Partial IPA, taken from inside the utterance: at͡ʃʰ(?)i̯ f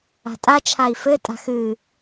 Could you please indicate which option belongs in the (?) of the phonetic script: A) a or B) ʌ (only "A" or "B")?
A